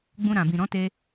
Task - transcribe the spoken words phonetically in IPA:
ɡ͡b ũ˧ ɾ ã˨ b ĩ˨ ɾ ɔ̃˨˦ t e˧

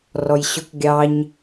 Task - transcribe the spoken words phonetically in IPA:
r ɔ j ɕ ʊ k ɡʲ ɑ ɲ

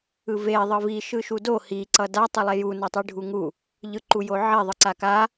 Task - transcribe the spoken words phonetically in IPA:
ɯ v e ðˤ ɯ v i ʃ ɯ ʃ u d o h i ǀ ʌ d a tˤ i lˠ e j u n a tˤ i ɖʱ u ŋ u | ʎ ɯ ǃ u j o ʕ e ðˤ ɯ ǀ a k a

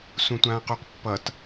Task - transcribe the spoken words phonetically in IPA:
s ũ tʷ ãː q u q pː ʌ t

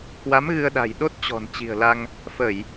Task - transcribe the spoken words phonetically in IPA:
k w a˨˦ m ɣ ɨ˧ ə̯ ɗ a̤˨˩ j ɗ o˦˥ t̚ t͡ɕ ɔ̤˨˩ n t͡ɕ i̤˨˩ ə̯ l a˧ ŋ | f ə˧˩˨ j

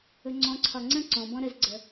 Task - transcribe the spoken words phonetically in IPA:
ɵ ŋ͡ǀ ɔ̃ ǀʰ ɒ ŋ͡ǀ ə̃ ǀ ɔ̃ b ɔ̃ ɾ ə z ɡ͡ǀ ə

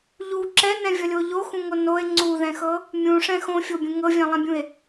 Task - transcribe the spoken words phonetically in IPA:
ʎ u ǁ ɛ n ɛ̃ vʲ ʌ lʲ o ʎ o x ũ ŋ o n o e̯ ŋ͡ǀ u ð ɛ̃ x ɤ | mʲ ũ ʂ ɛ̃ x õ fʲ o bʲ ũ ŋ ɤ vʲ ɛ̃ lˠ ɛ̃ bʲ ũ e̯

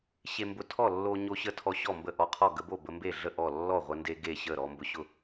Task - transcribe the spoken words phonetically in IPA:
ɕ e˧ m b ʊ˧ tʰ ɔ˥˩ lː o˧ ɲ o˧ ɕ ə˧ tʰ ɔ˧ ɕ ɔ˥˩ m b ə˥˩ ʔ ɔ˧ qʰ ɔ˥˩ ɡ ə˧ b o˥˩ b ə˧ m b e˥˩ ɮ ə˥˩ ʔ ɔ˥˩ lː ɔ˥˩ ʁʷ ə˧ n d e˧ ɡ e˥˩ ɕ ə˥˩ ɾ ɔ˧ m b ʊ˧ ɕ ʊ˥˩

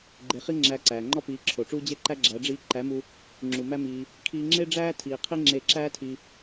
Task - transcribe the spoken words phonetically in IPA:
ɡ͡ǃ e˧ χ i˦ ŋ͡ǁ æː˧ ǀ æː˨ ŋ͡ǃ ɒ˦ p iː˨˦ ǁʰ o˨ ʈ͡ʂ uː˦ d͡ʑ e˦ ǃ æ˦ ɡ͡ǁ æ˨˦ ɖ͡ʐ iː˧ ǃ æ˨˦ m u˧ | ŋ͡ǁ u˨ m æ˦ m iː˧ | kʰ iː˧ ŋ͡ǁ e˦ ɖ͡ʐ æː˦ tʰ iː˧ qʰ i˦ ŋ͡ǁ e˧ ǁ æː˦ tʰ i˧

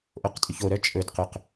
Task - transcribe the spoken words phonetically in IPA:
ʔ o q tʼ y ç o ɾ œ t͡ʃʼ ɵ d q ɵ q

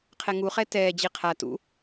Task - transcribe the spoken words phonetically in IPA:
qʰ ɛ ŋ u χ ɛ t ɛː d͡ʑ i qʰ a t ṵ

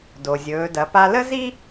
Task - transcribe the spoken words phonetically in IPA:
d o˩ zʲ ɵː˩˧ d ɐ˩˧ p a˧ l ə˥ z i˥

